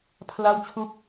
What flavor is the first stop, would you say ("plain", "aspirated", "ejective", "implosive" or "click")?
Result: aspirated